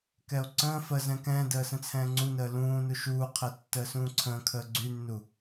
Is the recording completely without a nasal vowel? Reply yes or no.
no